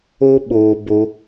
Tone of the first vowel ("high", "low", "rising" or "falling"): high